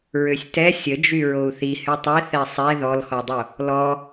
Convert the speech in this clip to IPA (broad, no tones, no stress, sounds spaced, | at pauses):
ɹ ø sʲ t ɛ sʲ ə d͡ʒ y ɹ o u̯ θ i h y tˤ ɛ θ ɛ sˤ ɛ ð ɔ l x ɔ dˤ o | l ɔ